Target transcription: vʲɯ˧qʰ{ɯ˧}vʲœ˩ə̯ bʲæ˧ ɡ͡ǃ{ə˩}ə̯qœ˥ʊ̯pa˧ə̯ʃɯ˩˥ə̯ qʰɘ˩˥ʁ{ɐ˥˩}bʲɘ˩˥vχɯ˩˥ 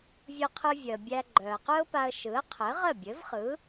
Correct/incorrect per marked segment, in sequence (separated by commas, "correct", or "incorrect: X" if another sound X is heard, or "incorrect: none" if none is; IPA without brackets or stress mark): correct, incorrect: œ˩, incorrect: ə˥˩